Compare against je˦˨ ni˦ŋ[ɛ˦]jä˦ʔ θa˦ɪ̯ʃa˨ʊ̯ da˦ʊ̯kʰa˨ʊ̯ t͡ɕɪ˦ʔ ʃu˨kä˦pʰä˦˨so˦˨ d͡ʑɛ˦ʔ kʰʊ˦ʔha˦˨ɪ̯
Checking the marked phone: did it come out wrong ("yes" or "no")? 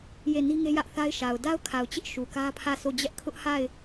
yes